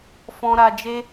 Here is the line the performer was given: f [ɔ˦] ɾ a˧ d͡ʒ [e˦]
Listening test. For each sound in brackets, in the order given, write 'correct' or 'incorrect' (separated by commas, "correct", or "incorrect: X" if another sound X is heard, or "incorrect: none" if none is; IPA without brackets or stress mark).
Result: incorrect: ɔ̃˦, correct